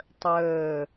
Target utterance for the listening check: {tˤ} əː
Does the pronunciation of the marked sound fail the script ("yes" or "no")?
no